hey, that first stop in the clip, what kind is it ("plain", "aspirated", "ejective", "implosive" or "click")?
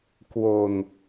plain